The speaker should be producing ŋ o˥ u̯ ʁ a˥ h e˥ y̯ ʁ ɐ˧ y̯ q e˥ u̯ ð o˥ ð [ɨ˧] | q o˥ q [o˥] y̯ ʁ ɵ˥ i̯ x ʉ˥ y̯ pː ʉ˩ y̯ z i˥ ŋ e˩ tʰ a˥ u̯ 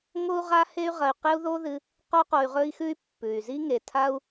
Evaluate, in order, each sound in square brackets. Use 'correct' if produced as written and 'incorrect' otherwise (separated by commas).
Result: correct, incorrect